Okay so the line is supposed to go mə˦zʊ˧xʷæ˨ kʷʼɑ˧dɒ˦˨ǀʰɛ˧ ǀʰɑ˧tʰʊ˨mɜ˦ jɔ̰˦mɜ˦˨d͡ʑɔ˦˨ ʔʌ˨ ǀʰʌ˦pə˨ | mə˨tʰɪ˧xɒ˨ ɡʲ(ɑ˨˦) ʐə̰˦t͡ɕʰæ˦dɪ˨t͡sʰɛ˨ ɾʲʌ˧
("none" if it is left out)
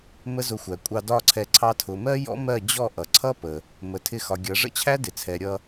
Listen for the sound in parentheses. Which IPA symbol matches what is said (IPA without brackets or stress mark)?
ʌ˨˦